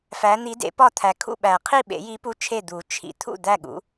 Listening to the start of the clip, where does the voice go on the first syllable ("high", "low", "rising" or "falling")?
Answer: rising